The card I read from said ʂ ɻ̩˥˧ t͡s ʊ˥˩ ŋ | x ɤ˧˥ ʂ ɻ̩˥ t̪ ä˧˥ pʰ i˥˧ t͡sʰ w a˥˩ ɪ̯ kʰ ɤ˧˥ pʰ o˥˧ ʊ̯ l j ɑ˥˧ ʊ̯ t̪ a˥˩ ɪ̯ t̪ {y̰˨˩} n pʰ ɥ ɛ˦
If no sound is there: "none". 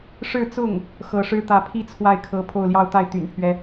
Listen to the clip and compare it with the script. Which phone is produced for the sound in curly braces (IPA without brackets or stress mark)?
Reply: y̰˨˩